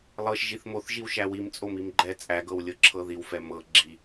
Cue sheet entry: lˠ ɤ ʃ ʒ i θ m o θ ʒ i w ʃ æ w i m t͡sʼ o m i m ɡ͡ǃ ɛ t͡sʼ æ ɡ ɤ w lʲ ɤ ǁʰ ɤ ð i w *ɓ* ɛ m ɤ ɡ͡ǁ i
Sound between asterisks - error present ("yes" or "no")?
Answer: yes